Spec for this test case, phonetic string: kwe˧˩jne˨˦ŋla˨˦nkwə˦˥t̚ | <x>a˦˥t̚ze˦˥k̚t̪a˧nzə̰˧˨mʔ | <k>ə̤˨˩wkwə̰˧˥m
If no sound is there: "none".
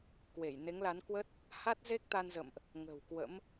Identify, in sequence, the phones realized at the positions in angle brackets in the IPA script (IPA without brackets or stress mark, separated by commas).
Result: h, ŋ